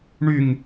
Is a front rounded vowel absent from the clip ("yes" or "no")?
no